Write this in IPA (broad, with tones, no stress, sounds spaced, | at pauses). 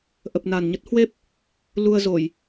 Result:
ʔ ə˨˩ p̚ n a˨˩ n ɲ ə˦˥ t̚ h w e˦˥ p̚ | l u˧ ə̯ z o˧˩˨ j